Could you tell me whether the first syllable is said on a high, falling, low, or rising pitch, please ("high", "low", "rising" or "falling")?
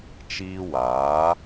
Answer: high